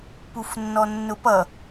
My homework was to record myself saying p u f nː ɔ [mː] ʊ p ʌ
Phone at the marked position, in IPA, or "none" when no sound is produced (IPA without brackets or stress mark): nː